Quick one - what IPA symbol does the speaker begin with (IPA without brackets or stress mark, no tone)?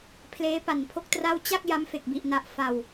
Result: pʰ